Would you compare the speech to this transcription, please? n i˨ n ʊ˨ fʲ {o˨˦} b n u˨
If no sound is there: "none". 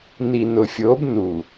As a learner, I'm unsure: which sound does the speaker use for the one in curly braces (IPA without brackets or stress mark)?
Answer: o˨˦